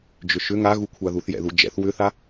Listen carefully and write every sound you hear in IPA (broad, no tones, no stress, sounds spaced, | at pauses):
d͡ʒ ʏ ʃ ʏ ŋ a ɣ u kʷʰ a ð u θ j ɛ̰ ð u d͡ʒ ɛ̰ θ w ʏ θ a